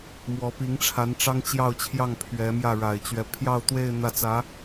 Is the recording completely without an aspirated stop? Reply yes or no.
no